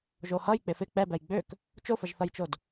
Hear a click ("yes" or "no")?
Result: no